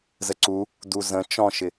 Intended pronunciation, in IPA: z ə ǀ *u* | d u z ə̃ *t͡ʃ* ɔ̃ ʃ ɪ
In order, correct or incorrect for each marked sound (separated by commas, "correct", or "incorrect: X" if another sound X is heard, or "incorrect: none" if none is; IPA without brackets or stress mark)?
correct, correct